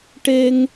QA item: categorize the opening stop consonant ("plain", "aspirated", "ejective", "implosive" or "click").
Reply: plain